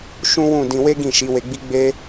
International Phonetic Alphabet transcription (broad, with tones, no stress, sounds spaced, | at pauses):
ʃ ũ˦ w ũ˦˨ d ĩ˧ w e˦ ɡ ĩ˦˨ ʃ i˨˦ w e˧ ɡ͡b i˦ ɡ͡b e˦